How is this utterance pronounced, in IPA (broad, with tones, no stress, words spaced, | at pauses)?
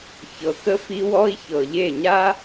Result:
çɤ˨kə˦ fi˦wɔ˦i̯ çɤ˨ʎe˦˨ɲa˦